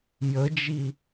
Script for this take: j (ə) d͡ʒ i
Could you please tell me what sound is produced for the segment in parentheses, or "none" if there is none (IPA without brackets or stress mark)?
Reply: ə